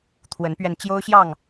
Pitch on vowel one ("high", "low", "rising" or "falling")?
rising